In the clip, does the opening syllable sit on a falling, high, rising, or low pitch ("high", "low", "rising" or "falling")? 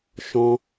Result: high